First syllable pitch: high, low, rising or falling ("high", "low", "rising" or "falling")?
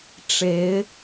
rising